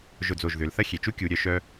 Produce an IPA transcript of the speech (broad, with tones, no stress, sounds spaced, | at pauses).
ʒ ʊ˧˩ d͡z o˧˩ ʒ ð ʏ˩˧ l θ ɐ˥ xʲ e˩˧ t͡ʃ u˥ kʲ u˩˧ ɾʲ œ˧ ʃ œ˥